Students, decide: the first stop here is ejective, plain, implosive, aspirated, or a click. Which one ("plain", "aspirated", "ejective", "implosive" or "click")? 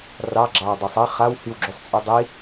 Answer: click